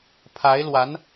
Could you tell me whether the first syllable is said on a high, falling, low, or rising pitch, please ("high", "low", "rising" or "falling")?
rising